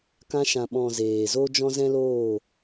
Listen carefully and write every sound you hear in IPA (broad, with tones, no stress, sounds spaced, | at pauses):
k ã˧ ʃ ã˨ ɓ ɔ̃˨ z eː˨ z o˦ d͡ʒ ɔ̃˦ z ɛ̃˦ l oː˦˨